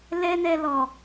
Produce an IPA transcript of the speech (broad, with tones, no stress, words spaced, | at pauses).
lɛ˦nɛ˧lɔ˨